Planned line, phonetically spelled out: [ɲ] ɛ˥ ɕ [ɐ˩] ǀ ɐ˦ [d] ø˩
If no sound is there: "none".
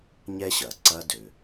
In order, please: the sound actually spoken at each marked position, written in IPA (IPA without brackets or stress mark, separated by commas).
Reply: ɲ, ɐ˩, d